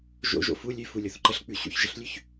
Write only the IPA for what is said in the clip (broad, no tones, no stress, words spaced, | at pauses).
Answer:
ʒo̰ʒo̰ fu lʲʉfulʲoθ ǃəɬk͡pʉ ɕṵçʒəɬlʲʉç